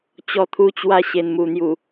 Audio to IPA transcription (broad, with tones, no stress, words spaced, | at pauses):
t͡ɕɔ˧t̪ʰu˧t͡ɕwa˧ ɕe˨˩nmu˨˩ n̪ju˨˩